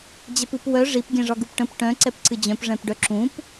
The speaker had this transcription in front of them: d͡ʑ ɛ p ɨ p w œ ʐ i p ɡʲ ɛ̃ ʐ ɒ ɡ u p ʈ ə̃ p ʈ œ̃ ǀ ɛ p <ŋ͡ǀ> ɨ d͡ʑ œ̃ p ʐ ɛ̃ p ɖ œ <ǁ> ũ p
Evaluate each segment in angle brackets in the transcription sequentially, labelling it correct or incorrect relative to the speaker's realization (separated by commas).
incorrect, correct